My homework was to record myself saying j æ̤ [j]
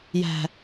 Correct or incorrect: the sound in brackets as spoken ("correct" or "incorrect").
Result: incorrect